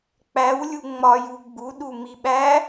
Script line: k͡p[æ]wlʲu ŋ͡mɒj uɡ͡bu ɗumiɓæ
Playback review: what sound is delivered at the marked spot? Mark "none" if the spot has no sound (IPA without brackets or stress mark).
æ